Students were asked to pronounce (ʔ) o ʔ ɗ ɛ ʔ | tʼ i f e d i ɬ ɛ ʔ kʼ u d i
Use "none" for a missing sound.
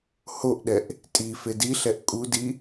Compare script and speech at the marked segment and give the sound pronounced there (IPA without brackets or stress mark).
h